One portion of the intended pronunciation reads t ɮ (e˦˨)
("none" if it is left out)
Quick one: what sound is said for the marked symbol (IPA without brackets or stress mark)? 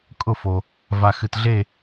e˦˨